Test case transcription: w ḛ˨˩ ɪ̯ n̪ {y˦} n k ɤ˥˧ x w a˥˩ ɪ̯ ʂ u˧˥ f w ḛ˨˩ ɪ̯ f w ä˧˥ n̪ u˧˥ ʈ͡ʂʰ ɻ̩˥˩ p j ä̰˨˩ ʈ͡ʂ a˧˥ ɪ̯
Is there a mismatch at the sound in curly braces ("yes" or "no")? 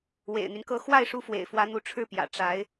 no